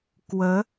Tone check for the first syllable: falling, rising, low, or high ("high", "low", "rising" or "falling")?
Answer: rising